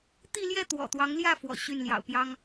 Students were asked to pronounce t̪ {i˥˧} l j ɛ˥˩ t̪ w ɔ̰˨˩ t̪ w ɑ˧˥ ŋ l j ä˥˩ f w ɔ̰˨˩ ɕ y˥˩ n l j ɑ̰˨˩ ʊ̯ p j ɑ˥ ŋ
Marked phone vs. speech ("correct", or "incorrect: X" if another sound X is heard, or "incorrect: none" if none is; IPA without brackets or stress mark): correct